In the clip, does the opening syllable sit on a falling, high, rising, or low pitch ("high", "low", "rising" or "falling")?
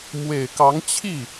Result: low